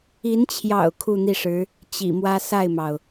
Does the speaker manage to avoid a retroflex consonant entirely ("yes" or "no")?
no